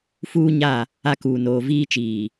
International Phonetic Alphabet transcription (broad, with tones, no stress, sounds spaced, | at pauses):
f uː˦ ɲ a˦˨ | a˦ k uː˨ n oː˨ v iː˦ t͡ʃ iː˨